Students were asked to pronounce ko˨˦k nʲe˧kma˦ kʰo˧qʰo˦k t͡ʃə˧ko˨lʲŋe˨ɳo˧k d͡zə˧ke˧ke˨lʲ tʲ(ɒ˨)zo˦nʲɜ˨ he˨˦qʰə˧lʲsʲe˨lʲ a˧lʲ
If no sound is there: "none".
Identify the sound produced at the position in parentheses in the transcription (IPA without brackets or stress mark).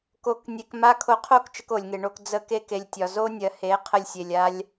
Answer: ɒ˨